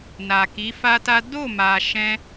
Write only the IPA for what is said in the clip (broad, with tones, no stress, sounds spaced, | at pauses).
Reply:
n a˨ k i˨˦ f a˦ t a˦ d o˦˨ m a˨ ʃ ɛ̃˧